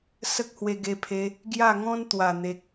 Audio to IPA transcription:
s ə˦ k̚ h w e˧ ɡ e˧ pʰ e˧ | ɡ j a˥˧ ŋ ɔ̃˦ n t̪ w a˨˩ n̪ e˨ k̚

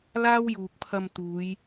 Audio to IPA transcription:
l aː˥ w j uː˨ k̚ pʰ ɐ˧ m t̪ uː˨˧ j

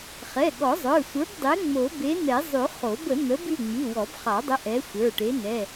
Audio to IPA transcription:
χ ɛ˩˧˩ ɠ ɔ˨˩˦ zˤ ə˞˩˧˩ sʷ ə˞˨˥ b dˤ e˨˥ ŋ͡m o˨˩˦ b e˨˥ n̪ ɛ˨˩˦ zˤ ʉ˨˩˦ χ o˨˩˦ b ə˨˩˦ n̪ ə˨˥ b ʉ˩˧˩ ŋ͡m i˩˧˩ w ɔ˨˩˦ b χ ɑ˨˩˦ dˤ ə˨˥ ʔ ɛ˨˥ sʷ ə˞˩˧˩ ʈ e˨˥ n ɛ˩˧˩

